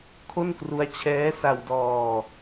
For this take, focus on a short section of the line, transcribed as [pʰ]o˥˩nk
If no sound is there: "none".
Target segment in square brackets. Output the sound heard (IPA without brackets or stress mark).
kʰ